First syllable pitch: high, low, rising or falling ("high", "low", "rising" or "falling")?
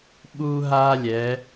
high